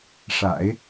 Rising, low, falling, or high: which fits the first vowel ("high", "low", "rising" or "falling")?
low